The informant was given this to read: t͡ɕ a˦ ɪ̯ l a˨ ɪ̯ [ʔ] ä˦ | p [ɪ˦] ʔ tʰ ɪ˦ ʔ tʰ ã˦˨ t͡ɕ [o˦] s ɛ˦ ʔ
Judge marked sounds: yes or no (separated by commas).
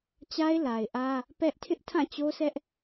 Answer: yes, no, yes